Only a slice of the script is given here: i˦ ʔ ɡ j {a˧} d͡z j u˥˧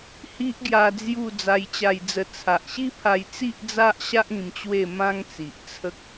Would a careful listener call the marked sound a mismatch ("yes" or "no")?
no